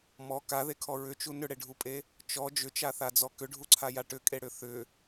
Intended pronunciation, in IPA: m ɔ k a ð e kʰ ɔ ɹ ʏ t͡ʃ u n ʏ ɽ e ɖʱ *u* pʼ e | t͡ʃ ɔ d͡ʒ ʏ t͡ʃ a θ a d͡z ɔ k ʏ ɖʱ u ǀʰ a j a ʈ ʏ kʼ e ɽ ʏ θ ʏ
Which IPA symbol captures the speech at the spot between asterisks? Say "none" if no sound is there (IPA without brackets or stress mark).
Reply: u